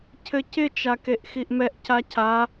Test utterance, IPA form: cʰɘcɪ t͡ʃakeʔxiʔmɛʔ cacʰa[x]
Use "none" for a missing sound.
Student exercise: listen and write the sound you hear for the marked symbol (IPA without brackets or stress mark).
none